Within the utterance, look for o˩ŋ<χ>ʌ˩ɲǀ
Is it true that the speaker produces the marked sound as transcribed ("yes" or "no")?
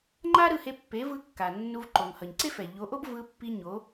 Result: no